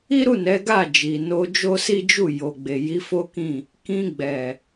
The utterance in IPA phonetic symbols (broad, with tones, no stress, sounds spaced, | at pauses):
i˦ ɾ u˦˨ n ɛ˨˦ ɡ a˦˨ d͡ʒ i˨ n o˧ d͡ʒ o˦ s i˦ d͡ʒ u˦˨ j o˨ ɡ͡b e˨ j i˨˦ f o˦ k ĩ˦˨ | k ĩ˧ ɡ͡b ɛ˨